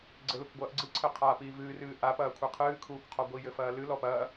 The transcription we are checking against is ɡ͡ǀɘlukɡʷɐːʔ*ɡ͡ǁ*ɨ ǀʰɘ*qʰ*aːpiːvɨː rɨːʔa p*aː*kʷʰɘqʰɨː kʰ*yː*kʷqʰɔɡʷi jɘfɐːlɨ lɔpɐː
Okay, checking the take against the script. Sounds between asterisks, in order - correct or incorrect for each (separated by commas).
incorrect, correct, incorrect, incorrect